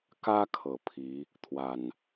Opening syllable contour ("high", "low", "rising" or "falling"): high